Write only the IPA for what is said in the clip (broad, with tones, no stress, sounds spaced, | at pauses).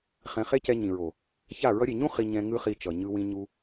χ ɛ̃˧ χ e˦ c ɛ˧ ɲ ĩ˨ ɹ o˨ | ç a˦˨ ɹ ʌ˧ ɾʲ e˨ ɲ ũ˦ χ i˧ ɲ ɛ̃˧ ŋ ɯ˦ χ i˧ t͡ʃ ʌ˨ ɲ ɯ˧ w ĩ˧ ɲ u˧